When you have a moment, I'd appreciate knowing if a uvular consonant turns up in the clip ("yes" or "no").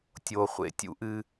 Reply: yes